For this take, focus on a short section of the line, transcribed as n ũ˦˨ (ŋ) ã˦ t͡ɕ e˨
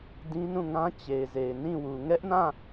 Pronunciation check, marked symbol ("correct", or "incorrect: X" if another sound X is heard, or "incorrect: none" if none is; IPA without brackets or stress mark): correct